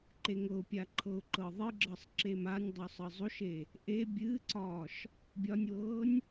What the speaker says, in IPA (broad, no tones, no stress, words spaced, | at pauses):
ǃeŋɤʊ̯pʲa ǃʰɤʊ̯ǃɤðˤɨɡ͡ǁɤsˤ ǁemanʲdˤø sˤɤzˤoʃe | ʔe bʲɨːǀɒːʃ | bʲɒnʲwɤːnʲ